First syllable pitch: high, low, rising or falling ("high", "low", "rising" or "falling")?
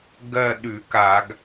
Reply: falling